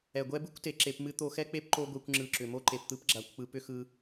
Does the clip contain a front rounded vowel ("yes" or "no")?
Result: yes